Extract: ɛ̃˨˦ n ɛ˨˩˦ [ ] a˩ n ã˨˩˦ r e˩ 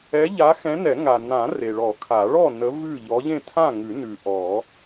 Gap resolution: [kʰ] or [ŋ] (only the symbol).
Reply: ŋ